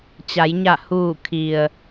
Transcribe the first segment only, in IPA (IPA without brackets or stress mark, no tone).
t͡ɕ